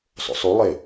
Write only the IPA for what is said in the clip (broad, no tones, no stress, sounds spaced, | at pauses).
sˤ o̰ sˤ u lˠ e